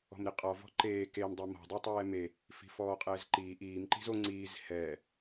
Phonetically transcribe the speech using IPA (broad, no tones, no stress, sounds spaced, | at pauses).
ɔ̤ m ɾ i qʼ ɔ v ɔ̤ ǃ eː k e m dˤ e m ɔ̤ dˤ y tˤ ɛː m e | f i̤ f ɔː qʼ ɛː z ǃ iː ʔ iː m ǃ i̤ z o ŋ͡ǀ iː z h ɛː